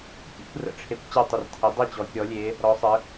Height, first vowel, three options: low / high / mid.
high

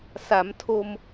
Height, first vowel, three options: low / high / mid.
low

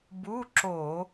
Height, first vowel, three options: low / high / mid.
high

